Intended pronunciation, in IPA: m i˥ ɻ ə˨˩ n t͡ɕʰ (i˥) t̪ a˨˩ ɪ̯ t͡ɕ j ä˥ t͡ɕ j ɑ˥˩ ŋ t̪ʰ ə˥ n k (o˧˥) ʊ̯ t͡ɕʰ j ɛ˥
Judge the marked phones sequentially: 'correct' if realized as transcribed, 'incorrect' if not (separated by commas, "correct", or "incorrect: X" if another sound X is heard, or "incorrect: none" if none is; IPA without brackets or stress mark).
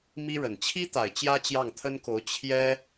correct, correct